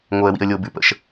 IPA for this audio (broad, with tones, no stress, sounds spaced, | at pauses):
ŋ o˨ ə̯ w ḭ˨ ə̯ lʲ o˨ b ʉ˨ p ə̰˨ ʃ